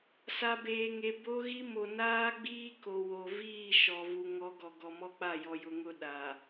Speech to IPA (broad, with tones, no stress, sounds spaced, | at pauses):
s a˨ b eː˨ ŋ e˨ b o˦ ɣ i˦ m o˨ n aː˦ ɡ͡b iː˦ k o˨ w o˨ v iː˦˨ ʃ ɔ˨ v u˨ ŋ ɔ˨˦ ɡ ɔ˨ ɡ ɔ˨ m ɔ˦ k͡p a˦˨ j ɔ˨ j ʊ˨ ŋ ʊ˦˨ ɗ a˨